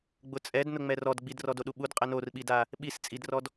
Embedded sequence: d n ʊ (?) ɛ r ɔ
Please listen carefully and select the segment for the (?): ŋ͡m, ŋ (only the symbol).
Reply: ŋ͡m